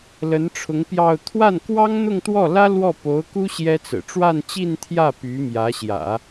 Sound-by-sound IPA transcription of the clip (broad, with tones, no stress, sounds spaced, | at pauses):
l ə˧˥ n ʈ͡ʂʰ ʊ˧˥ ŋ p j ɑ˥˧ ʊ̯ t̪ʰ w a˥˩ n k w ɑ˥ ŋ n̪ ʊ˥˧ ŋ t̪ w ɔ˥˩ l ä˥ l w ɔ˥˩ p o˧˥ ʊ̯ k u˥ ɕ j ɛ˥ t͡s ɹ̩˨˩ ʈ͡ʂ w a˥˧ n t͡ɕ i˥˧ n t̪ʰ j ä˥˩ p y˧˥ m j ä˧˥ ɕ j ä̰˨˩˦